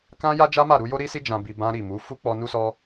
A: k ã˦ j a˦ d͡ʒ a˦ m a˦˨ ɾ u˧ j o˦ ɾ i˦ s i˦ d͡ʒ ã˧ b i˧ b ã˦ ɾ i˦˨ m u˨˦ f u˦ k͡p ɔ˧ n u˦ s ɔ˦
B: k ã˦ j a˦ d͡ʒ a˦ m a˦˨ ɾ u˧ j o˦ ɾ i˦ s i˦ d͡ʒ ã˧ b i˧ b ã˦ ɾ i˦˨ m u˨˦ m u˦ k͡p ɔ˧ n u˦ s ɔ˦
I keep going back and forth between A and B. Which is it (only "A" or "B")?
A